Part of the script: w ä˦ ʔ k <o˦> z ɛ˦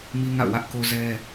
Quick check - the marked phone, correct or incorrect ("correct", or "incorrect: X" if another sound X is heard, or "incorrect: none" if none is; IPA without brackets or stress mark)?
correct